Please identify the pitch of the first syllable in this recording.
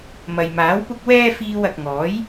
low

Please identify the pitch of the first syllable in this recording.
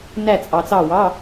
falling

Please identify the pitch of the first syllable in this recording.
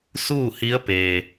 falling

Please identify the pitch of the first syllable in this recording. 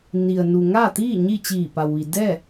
low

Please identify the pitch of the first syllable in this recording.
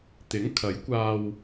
rising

